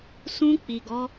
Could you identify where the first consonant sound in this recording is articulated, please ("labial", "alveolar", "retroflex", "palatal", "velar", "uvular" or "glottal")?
alveolar